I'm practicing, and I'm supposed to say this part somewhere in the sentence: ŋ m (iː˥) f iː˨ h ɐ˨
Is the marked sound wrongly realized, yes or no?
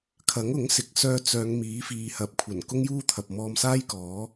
yes